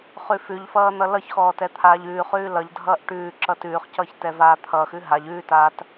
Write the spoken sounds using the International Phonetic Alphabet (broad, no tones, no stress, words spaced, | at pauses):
χʉfʉʎfʌː n̪ʌlʌçxɔː tɛt̪ʰaːʎʉːχʉː lʌʎdʱʌːʔ ʈʉː ǁʌtʉːχcʌːç tɛvaːt̪ʰʌːxʉ ɦaʎ ʉːtaːt